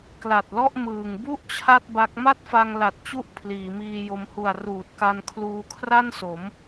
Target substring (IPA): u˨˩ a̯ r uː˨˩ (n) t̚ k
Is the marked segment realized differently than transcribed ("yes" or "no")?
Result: yes